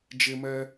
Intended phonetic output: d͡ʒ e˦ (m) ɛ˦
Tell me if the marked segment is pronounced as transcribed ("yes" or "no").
yes